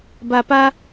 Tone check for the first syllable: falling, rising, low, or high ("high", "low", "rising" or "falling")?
low